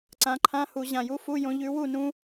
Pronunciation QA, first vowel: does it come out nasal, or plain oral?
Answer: nasal